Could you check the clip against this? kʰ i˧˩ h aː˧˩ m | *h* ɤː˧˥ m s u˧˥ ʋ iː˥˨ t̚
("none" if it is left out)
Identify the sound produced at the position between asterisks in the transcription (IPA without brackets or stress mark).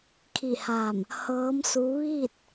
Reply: h